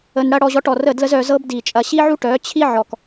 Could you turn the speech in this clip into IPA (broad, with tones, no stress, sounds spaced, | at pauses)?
ə˧ n ɽ ɐ˦ ɽ ɔ˧ ʑ ɔ˧ ʈ ɔ˨ r ə˦˨ d l ə˦ z œ˧ z ɤ˦ b d i˨ t͡ʃʼ ɐ˧ ɕ i˦ ʕ u˦ ʈ œ˨˦ t͡ɕʰ i˦ ʕ ɔ˨ k